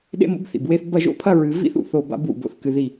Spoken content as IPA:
ɗ ḛ˦ m o̰˦ b θ ḭ˨ b w e˦ θ b ɐ˦˨ ʒ o̰˦ pʰ ɐ˦ ɹ ɨ˨ v ḭ˦ θ ṵ˨ θ o˦˨ b a̰˦ b w ṵ˨ b o̰˨ θ k ɨ˨ ð i˦˨

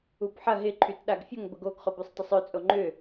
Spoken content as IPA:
u b ħ ɐ ɦ ɪ ǃʰ y t ɗ a ɡ fʲ ʊ ŋ b ə ɡ o ɡ χ o b y sˤ tˤ ʊ sˤ ø t͡sʼ o ŋ͡ǃ ʏ

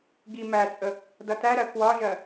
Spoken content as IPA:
ɡ i m æ t͡sʼ ə | d ʌ t æ ɾ ɜ k w ɒ ʒ ɜ

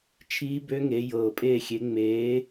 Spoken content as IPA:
t͡ʃʰ iː˦˥ b ø˦˥ ŋ e˨˦ j ɤː˨˩ pʼ eː˦˨ xʲ e˨˦ ŋ͡m eː˨˦

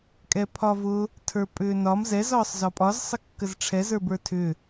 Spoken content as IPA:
kʼ ɛ pʰ ɒ v ʊ | tʰ ə˞ pʼ ʏː n ɒ m z ɛ z ɒː sˤ z ɒ pʼ ɒ z sˤ ə kː ə z ʈ͡ʂʰ ɛ z ə˞ b ə˞ tʰ ʏ

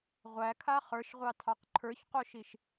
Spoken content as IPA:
ʁʷ æ kʰ a χ ə˞ ʃ ʁʷ ɑ tʰ ɑ q ǃʰ ə˞ ç q o ʃ i ʃ

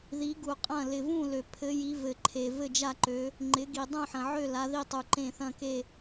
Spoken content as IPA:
ð i˨˦ ɡ u˨ qʼ ɐ̃˦˨ l ɪ˨ v ũ˦˨ l ø˨ pʰ ɘ˨˦ j i˨˦ v ɘ˨ ǃʰ e˨ v ɘ˦˨ d͡ʒ a˦˨ ǃ ø˨˦ | ŋ͡ǃ ɪ˨˦ ɡ i˨ dˤ ũ˦˨ ħ ɐ̃˨ ʕ ø˦˨ l a˨˦ ð i˦˨ tˤ u˨ ǃ ẽ˦˨ θ ɐ̃˦˨ k e˦˨

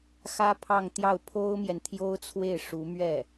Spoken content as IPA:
x ä˥ pʰ ɑ˥˧ ŋ t̪ j ɑ˥˩ ʊ̯ pʰ o˥ ʊ̯ m j ɛ˨ n t̪ʰ j o˥ ʊ̯ t͡sʰ w e˥˩ ɪ̯ ʂ u˧˥ m ɥ ɛ˥˩

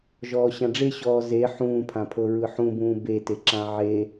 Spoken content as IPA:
ʒ ɔː ɕ ã ɖ͡ʐ e ɕ ɔː z e ħ ũː pʰ ã pʰ ɤ ɹ ɯ ħ ũ b ũː b e t e ǁ ã ʕ e

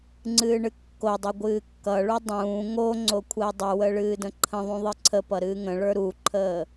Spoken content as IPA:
ŋ͡ǀ ɨː ɳ ɨ kː o dˤ ɨ ɡʷ ɨː kː ʌ ɭ u dˤ ũː ŋ o ŋ͡ǀ o kʷʰ əː dˤ ɨ w ə ɭ ɨː d ə̃ ǃʰ ə̃ ðˤ ũ ðˤ ɨ ǀʰ ə p ʌ ɾ ɨː ŋ ə̃ ɭ ə˞ ɾ u ǃʰ əː

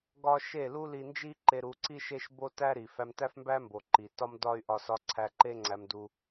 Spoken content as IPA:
ɡ ɒ˦ ʃ e˦˨ l u˦ l i˧ n d͡ʒ i˦ ǃ e˧ ɾ u˧ ǀ i˦ ʃ e˦ ʃ b o˦ t æ˦ ɾ i˨ f æ˧ m t æ˦ f m b æ˦ m b o˨ ǃ i˨ t ɒ˦ m d ɒ˦ y̯ ʔ ɒ˧ s ɒ˧ ǀʰ æ˧ ǃ e˦ ŋ͡ǀ æ˧ m d u˧

